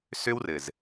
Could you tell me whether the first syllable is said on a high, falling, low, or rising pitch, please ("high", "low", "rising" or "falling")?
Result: high